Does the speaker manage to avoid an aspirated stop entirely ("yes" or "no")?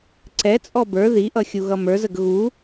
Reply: yes